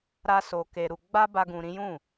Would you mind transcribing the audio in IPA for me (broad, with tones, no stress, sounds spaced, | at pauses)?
ɾ a˦ s o˧ k e˧ ɾ u˧ ɡ͡b a˦ b a˧ ɡ ũ˧ ɾ ĩ˦ j ũ˦˨